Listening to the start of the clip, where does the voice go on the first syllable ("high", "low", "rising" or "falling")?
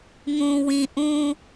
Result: low